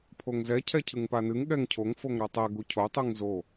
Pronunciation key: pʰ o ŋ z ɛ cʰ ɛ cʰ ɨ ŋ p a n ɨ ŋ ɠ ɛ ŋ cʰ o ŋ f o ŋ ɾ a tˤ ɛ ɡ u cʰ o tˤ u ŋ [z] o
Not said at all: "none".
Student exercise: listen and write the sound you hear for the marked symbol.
z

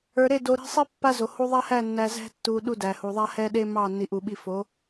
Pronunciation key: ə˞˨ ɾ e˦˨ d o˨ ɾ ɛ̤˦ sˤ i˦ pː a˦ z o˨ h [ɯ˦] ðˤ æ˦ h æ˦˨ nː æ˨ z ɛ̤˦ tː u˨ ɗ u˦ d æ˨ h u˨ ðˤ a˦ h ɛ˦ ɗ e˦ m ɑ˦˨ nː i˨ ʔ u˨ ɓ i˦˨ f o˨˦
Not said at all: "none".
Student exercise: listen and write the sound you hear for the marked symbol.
u˦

